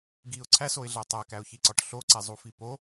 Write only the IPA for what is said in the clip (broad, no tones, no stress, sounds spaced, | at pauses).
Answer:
ɡ i ʊ̯ ǀʰ æ s o ɪ̯ ɮ æ tˤ æ k æ ʊ̯ ç i ǀ ɒ ʈ ɬ o ǀ e zˤ u f i p o